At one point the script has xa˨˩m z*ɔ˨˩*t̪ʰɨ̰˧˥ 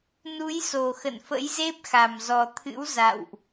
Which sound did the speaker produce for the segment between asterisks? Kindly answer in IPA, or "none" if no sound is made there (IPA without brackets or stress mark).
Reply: ɔ˨˩